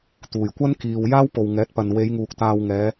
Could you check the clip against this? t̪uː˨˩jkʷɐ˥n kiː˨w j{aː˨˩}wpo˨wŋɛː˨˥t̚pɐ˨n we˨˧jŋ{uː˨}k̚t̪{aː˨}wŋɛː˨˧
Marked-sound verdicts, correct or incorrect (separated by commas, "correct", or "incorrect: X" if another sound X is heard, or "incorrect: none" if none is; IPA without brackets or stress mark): incorrect: aː˥, correct, correct